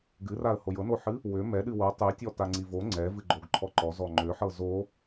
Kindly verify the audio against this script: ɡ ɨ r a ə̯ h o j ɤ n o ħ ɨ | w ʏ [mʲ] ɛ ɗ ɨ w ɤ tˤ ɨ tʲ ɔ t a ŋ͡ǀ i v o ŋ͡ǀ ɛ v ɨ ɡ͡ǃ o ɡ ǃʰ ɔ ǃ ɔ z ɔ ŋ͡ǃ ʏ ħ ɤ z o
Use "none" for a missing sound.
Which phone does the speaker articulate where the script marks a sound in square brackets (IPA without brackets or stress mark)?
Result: m